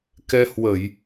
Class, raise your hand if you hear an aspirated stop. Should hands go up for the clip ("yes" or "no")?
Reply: no